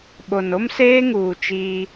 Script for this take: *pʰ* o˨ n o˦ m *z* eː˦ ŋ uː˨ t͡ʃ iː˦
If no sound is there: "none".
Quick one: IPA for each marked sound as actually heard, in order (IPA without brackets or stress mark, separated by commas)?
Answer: ɓ, s